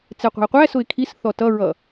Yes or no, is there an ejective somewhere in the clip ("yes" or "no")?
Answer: no